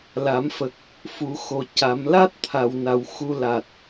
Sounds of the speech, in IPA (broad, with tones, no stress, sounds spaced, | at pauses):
l a˨˩˦ m f ə˨˩ k̚ | f u˨˩˦ x o˨˩˦ c a˨˩˦ m l a˦˥ t̚ t̪ʰ a˧ w n a˧ w x u˧ l a˨˩ t̚